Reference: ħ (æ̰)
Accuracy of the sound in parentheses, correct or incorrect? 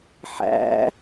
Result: correct